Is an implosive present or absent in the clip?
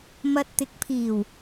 absent